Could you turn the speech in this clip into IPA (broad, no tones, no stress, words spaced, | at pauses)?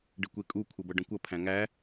ɖɪkʷekʼu kʷʰɤbʌɖə̃kʷʌ pʰæ̃ŋæ